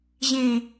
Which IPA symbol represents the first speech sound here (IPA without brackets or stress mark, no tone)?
ʑ